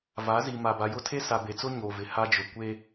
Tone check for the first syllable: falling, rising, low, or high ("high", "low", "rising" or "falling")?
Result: rising